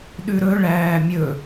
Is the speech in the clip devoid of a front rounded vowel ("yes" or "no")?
yes